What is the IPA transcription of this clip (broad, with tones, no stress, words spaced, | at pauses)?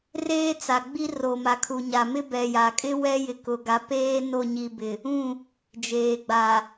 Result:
reː˦t͡sa˨ ɡ͡bi˦ ro˨ma˨kʰu˨ɲa˨ mɪ˦bɛ˨ja˨kʼɪ˦ wɛ˦jɪ˨kʊ˨ɡa˨˦ peː˦ no˦˨ ɲi˨bɪ˨ | ũ˦˨ | d͡ʒeː˨ɡ͡ba˨